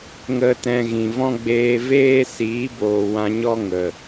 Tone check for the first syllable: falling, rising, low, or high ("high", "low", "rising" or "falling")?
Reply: high